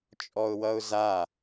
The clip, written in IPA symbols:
t͡ʃʼɔʊ̯wʌʊ̯za

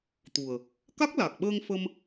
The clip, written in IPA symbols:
t̪u˨˩ə̯ | ka˦˥k̚la˨˩k̚ɓəː˧ŋ fə˧m

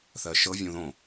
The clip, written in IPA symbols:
θɜʃɤ vʲũðõ

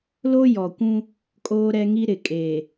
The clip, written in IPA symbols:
lo˦jɔ˨kʷũ˦ | kʼoː˦ɾɛ˦ŋi˦ ɾɪ˨kʼe˨

